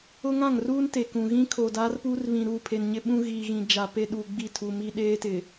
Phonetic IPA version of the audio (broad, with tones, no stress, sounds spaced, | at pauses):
ʊ˦ ŋ ã˦˨ ŋ r uː˦ n t e˨ k ũ˨ ɣ ĩ˦ kʰ oː˨ d aː˦ r p uː˦ r β ĩ˨ ɾ uː˦˨ pʰ e˨ n ɲ ɪ˦ ɓ ũ˦ ɣ iː˨ ɣ ĩ˨ d͡ʒ a˨ p e˦ ɗ u˨ ɡ͡b i˦˨ tʰ u˨ m i˦ ɗ eː˦ t ɪ˨